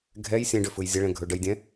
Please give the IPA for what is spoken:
ɡʱ ɛ j sʲ ɛ̃ ɖ ʏ f ɯ j zʲ ə ɭ ɛ̃ ɡʱ ɵ ɖ ə j dʲ ɛ̃

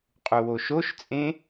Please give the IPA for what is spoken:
qʼ u w o ʃ o ʃ t͡sʼ ẽ

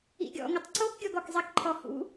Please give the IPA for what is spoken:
ḭ ɡʲ ɔ̰ ŋ ə tˤ ǀ o k ɡʲ ɔ ɡ ɔ k zˤ e k ǃʰ ɔ h ṵ

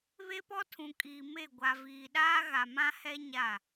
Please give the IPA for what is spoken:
β e˦ p ɔ˦ tʰ ũ˨ kʼ iː˨ m e˦˨ ɡʷ a˨ v iː˨ ɗ aː˦ ɣ a˨ m ã˦ h ɛ˦ ɲ a˦˨

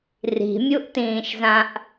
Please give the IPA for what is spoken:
r i̤ mʲ u ʔ t ĩː ʃ z ã ʔ

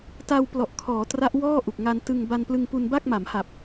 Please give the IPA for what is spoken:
t a˧ w p l ɔ˨˩ ʔ kʰ ɔː˩˦ t r a˦˥ ʔ w ɔː˥˩ ʔ u˨˩ k̚ ŋ a˧ n t ɯ˧ ŋ b a˧ n p l ɯ˧ ŋ p u˧ n b a˥˩ k̚ m a˩˦ m h a˨˩ p̚

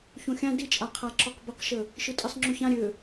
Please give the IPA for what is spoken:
ç õ xʲ ã d i t͡ʃʼ a qʰ a ǁ ɔ q b ə q ʃ ə | ʃ ɯ tʼ i sˤ ŋ͡ǁ ʉ ç ã ɾʲ ø

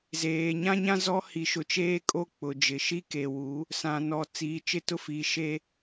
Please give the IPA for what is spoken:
z eː˨ ɲ ã˦ ɲ ã˦ z ɔ˦ h i˨ ʃ ʊ˨ t͡ʃ eː˦ kʼ o˦ k͡p ʊ˨ d͡ʒ ɪ˨ ʃ i˦ k e˨ w u˨˦ | s ã˨ n ɔ˨ t͡s iː˨ t͡ʃ ɪ˦ t ʊ˦ f i˨˦ ʃ e˦

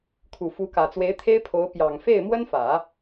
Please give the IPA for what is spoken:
kʰ u˨˩ f u˧˥ k ä˨˩ t͡s w e˧˥ ɪ̯ t̪ʰ e˥ ɪ̯ pʰ o˧˥ ʊ̯ p j ɑ˨˩ ŋ f e˥˩ ɪ̯ m w ə˥ n f ä˨˩˦

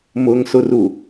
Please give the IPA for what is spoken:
m ʊ ŋ s ʊ r u

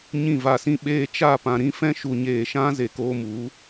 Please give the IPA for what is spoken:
ɲ ĩ˦˨ v a˧ s ĩ˦ ɓ eː˧ t͡ʃ aː˦˨ p ã˧ ɾ ĩ˦ f ɛ̃˧ ʃ u˨ ɲ eː˨ ʃ ã˧ z e˨ k oː˧ m u˨˦

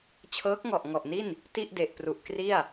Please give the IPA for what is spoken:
t͡ɕʰ ɤː˦˥ k̚ ŋ ɔ˨˩ ʔ ŋ ɔ˨˩ ʔ n i˥˩ n | t i˥˩ ʔ d e˨˩ ʔ p r u˨˩ ʔ k r i˥˩ a̯

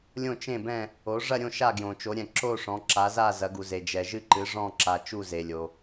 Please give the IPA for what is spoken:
lʲ õ˦˨ t͡ʃ ẽ˦˨ b ɛ̃˦˨ | o˩˧ ʐ ɐ˦˨ ɾʲ õ˦˨ ʃ a˦˨ ɡ j õ˩ t͡ʃ o˩˧ ɾʲ ɛ̃˩ ǁ o˦˨ ʂ ɔ̃˩˧ ǁ a˩˧ z a˦˨ z ɐ˩˧ ɡ u˩ z e˩ d͡ʒ ɛ˩ ʒ ɨ˦˨ ǃ ɨ˩˧ ʐ ɔ̃˦˨ ǁ a˩ t͡ʃ u˦˨ z e˩ lʲ o˩

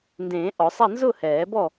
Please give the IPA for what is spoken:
n d ẽː˨˩˦ ʔ ɔ˨˩˦ sˤ a˥˨ n z ʊ˥˨ h ɛː˨˩˦ b ɔ˥˨

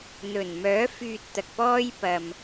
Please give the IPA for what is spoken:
n̪ ɵ˨˩ n m œː˨˥ f yː˧ t̚ t̪ ɐ˨ k̚ p ɔː˥ j p ɐ˧ m

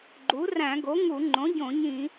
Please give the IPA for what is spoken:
ɡ͡ǃ u˩˥ r æ̃˧˩˧ ɡ o˩˥ ŋ u˧˩˧ ŋ͡ǃ õ˩˥ ɟ õ˧˩˧ ɲ ĩ˧˩˧

